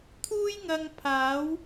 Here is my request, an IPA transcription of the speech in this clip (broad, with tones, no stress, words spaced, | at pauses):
t̪ʰuː˥jŋɐ˧ŋ pʰaː˨˥w